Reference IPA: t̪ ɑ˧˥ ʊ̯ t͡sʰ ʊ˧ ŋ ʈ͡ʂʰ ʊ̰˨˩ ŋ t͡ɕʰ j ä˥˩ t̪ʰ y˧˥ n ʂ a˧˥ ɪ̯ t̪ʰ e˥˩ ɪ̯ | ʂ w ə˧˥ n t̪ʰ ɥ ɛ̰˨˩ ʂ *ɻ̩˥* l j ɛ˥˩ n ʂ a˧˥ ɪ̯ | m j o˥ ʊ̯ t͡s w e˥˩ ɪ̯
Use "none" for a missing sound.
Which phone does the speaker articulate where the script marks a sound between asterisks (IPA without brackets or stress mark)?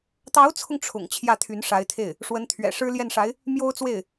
ɻ̩˥